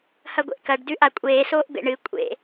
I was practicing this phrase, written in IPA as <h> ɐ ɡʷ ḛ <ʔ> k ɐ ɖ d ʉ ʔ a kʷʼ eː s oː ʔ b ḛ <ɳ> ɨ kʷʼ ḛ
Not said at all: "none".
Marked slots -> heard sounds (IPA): h, ʔ, ɳ

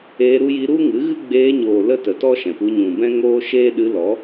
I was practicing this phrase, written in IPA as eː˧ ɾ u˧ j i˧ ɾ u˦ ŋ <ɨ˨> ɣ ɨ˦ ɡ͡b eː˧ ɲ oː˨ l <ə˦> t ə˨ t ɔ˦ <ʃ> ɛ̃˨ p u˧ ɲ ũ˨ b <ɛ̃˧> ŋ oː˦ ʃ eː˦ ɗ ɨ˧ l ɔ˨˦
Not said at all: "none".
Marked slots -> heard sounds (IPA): ɨ˨˦, ə˦, ʃ, ɛ̃˦

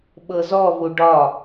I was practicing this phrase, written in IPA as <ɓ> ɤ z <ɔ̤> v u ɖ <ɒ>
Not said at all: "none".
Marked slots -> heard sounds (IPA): ɓ, ɔ, ɒ

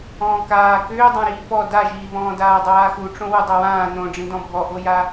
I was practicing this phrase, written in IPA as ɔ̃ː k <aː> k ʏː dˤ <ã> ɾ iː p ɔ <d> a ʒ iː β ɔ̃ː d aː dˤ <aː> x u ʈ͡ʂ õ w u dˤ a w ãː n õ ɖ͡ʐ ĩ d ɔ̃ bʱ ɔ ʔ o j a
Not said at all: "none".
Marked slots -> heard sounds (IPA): aː, ã, d, aː

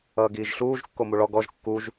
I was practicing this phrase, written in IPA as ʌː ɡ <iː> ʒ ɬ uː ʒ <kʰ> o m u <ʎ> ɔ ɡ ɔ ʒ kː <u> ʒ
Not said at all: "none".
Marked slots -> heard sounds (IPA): iː, kː, ɭ, u

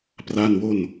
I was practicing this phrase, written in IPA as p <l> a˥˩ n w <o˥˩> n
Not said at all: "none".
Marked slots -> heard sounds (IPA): r, o˥˩

